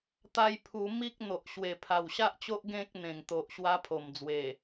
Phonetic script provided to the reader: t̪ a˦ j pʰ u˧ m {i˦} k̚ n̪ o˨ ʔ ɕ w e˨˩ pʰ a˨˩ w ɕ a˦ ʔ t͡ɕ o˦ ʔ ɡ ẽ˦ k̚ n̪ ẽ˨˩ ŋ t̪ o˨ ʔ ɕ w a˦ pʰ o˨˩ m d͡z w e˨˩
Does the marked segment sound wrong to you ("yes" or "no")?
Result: no